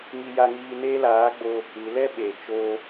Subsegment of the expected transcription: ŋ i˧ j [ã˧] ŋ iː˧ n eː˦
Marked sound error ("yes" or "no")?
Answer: yes